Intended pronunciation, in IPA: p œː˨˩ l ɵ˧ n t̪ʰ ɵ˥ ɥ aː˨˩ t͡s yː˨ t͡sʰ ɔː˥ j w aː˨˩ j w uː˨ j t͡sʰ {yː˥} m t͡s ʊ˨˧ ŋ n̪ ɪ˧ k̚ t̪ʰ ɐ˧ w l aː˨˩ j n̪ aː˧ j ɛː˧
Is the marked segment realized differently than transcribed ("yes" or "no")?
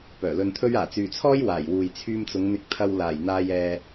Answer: yes